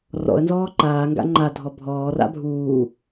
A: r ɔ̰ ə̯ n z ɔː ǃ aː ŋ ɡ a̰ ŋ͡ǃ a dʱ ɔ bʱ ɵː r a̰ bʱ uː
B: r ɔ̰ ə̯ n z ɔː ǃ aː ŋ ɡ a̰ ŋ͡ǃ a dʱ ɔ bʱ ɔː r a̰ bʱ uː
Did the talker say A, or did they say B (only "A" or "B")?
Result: B